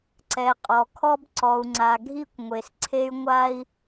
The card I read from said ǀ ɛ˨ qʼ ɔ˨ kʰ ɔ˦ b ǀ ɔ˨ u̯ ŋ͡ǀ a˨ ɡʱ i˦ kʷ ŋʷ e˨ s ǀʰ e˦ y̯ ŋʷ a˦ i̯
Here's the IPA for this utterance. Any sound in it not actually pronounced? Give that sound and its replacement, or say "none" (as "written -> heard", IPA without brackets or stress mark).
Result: none